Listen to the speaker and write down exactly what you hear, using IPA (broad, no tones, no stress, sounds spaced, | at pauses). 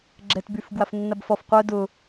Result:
ɡ͡ǁ ɛ t b y f ɡ w a f nː a b f ɔ f qʷ œ d ʊ